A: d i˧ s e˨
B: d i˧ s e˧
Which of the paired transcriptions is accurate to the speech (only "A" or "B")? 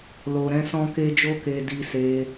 B